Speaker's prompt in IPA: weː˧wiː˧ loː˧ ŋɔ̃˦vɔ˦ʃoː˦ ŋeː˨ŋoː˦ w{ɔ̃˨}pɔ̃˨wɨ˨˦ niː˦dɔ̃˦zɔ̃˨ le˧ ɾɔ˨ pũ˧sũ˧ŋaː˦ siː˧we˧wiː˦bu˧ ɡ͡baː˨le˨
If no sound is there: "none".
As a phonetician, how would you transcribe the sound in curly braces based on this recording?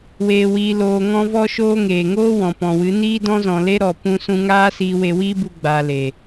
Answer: ɔ̃˨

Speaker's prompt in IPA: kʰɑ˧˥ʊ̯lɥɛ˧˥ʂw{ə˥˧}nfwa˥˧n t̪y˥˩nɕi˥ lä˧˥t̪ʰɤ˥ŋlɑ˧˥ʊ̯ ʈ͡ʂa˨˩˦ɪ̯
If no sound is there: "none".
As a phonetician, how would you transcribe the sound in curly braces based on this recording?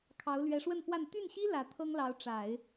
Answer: ə˥˧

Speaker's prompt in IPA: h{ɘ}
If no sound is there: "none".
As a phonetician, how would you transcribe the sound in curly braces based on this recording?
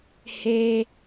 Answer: e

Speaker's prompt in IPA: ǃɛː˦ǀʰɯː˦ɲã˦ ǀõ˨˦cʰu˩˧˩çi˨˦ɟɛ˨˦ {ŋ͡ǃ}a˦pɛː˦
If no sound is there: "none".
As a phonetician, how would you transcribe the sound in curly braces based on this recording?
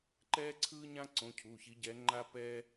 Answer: ŋ͡ǃ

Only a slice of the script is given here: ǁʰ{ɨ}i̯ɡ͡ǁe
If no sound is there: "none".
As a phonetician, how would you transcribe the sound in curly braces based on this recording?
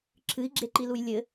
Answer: ɨ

